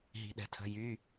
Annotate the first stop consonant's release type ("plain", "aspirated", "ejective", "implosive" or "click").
implosive